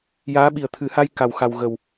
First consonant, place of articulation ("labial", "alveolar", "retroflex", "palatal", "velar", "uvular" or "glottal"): palatal